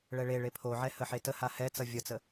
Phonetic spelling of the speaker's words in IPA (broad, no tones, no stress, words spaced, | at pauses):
ɭɛɭeɭe pʰoʕɛ həħetəha hɛt͡sʌ vʲʌt͡sə